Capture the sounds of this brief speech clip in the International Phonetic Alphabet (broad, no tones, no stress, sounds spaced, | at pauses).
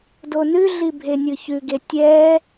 d o n ʉ ɮ i bʱ e nʲ ɯ ç ʉ ɡ e tʲ ɛ